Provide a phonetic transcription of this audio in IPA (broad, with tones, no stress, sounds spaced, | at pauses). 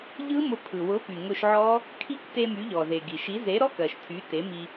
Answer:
ʎ ɯ˦˥ m ʊ˧ pʰ ɯ˩ w ʊ˨˥ p y˩ ŋ ʊ˧ ʃ ʕ ɔ˦˥ | kʰ i˦˥ k t e˧ m y˨˥ ʎ ɔ˩ z e˩ ɡ i˩ ʃ i˨˥ z e˨˥ ɾ ɔ˧˥˧ k ɜ˩ ʃ tʰ y˨˥ t e˨˥ m i˧